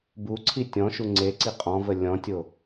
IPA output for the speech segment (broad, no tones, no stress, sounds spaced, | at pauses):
b u ǀʰ i tʲ ɔ̃ ʃ u ŋ͡ǀ e ǀ i qʼ ɔ̃ v ə lʲ ɔ̃ tʲ o